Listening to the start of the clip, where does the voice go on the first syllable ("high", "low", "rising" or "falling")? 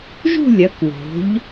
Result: falling